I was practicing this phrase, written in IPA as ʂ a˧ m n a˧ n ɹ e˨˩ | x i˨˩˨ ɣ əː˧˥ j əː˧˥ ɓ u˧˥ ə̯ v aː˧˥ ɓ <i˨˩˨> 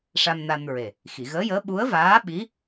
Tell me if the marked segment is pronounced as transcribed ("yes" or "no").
no